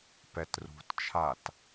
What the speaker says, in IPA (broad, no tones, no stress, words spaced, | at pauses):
pɛtrṳtt͡ʃʰat